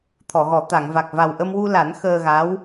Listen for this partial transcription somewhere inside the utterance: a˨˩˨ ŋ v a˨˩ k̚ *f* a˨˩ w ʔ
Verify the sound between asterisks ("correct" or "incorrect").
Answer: incorrect